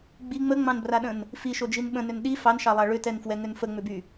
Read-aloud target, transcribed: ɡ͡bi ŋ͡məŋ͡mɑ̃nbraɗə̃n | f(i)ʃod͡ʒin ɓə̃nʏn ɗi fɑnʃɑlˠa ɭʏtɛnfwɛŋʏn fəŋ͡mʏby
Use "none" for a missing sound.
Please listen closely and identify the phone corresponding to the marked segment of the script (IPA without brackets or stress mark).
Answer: i